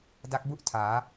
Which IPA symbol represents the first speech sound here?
d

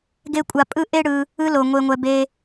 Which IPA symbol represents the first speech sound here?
ɡ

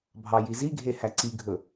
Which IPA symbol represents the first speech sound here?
bʱ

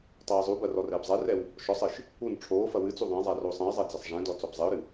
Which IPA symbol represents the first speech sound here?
tˤ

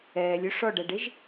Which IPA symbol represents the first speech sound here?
ɛː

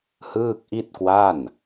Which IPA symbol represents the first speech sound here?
h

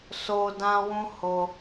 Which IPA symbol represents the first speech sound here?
s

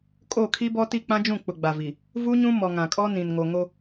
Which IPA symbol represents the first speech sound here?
kʼ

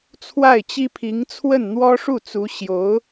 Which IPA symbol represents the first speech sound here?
t͡sʰ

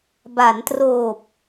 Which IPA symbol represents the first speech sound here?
b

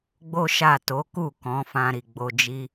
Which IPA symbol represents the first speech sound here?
ɡ͡b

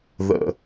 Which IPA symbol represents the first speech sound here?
ð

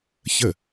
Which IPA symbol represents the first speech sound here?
ç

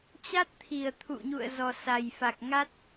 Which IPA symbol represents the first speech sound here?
t͡ɕ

